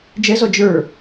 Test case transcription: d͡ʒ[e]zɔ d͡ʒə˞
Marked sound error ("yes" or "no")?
yes